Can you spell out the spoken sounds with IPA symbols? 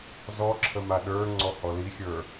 zɔǁʰə maɗə˞ŋ͡ǀɔ hɔlixʲə˞

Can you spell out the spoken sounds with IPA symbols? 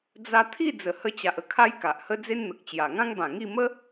d͡za˧t̪ʰi˥˧ d͡zə˨˩hə˧t͡ɕa˨ʔə˦ kʰa˦jka˨ʔhə˦ d͡ze˦nn̪ə˨k̚t͡ɕja˨˩ ŋã˦ŋbã˨˩ŋi˥˧ mə˦

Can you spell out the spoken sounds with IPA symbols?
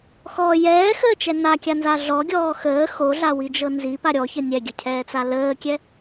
xɔ jɛːxəːt͡ʃɛ nakʲanza ɮɔɡʲɔː xəː xoɮawid͡ʒɤ nzipa ɾʲɔçə nʲɛɡʲəcʰɛːt͡sa ləːkʲɛ

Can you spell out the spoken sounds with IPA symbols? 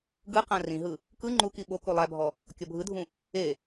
ɡɯqã rĩɦɯ | kɯ ŋ͡ǃuki ɓoku lˠæbʱɔ | kʲɔbʱɯdʱũ | e

